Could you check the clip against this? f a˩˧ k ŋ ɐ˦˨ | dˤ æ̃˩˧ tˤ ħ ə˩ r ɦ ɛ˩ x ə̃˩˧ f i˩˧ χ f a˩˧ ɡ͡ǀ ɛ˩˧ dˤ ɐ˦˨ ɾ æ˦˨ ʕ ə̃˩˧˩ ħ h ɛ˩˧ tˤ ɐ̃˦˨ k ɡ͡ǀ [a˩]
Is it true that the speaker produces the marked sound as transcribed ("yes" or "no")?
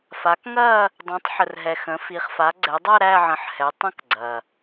no